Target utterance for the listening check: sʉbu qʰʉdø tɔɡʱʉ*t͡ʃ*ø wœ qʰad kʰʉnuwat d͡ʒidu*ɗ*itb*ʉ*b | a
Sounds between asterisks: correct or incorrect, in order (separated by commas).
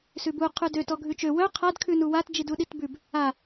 correct, correct, correct